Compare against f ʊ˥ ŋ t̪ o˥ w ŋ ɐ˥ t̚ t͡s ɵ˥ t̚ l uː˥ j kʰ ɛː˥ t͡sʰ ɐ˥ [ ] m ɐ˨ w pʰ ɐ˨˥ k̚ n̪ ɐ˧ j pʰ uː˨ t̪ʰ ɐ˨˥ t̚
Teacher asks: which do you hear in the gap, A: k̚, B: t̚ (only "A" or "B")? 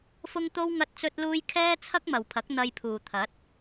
A